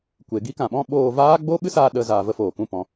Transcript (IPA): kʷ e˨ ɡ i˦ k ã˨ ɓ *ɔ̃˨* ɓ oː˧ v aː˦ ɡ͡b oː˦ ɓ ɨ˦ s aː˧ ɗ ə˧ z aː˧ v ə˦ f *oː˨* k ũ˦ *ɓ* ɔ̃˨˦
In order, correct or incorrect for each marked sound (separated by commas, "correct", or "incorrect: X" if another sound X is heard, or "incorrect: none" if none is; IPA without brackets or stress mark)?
incorrect: ɔ̃˦, correct, incorrect: p